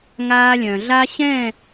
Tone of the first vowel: high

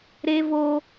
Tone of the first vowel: high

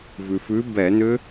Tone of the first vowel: low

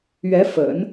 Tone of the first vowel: rising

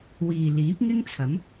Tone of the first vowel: low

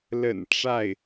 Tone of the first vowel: low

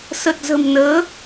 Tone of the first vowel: low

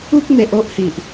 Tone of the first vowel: high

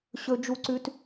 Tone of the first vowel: high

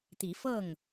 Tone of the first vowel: rising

